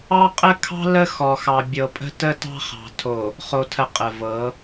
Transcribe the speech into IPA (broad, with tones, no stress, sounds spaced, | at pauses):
ɑ˦ qʼ ə˦ kʰ ɑ̤˦ l ə˦ x ɔ˨ x ɑ˨ bʲ ɤ˨ pʼ ə̤˦ t ə˦ t ɑ̤˦ χ ɑ̤˨ tʰ o˨ | χ o˨ tʰ ə˨ qʼ ə˨ v ɤ˨˦